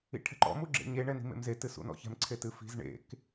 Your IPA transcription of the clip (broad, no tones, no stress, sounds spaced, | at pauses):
ḭ ʈʰ ɛ̤ ǃ ɔ̰ m u ɡ͡ǁ ḛ ɲ e ɳ ɛ n i̤ m ḛ m z e t ɨ s ṵ n ɔ̰ ç ɛ̤ m ǀʰ e t ɨ f i̤ z ɳ ḛ k